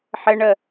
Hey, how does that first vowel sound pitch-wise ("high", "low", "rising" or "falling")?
high